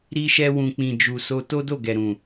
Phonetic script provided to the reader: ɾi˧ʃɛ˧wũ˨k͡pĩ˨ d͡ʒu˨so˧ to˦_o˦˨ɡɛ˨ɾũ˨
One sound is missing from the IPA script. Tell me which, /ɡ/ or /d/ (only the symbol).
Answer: d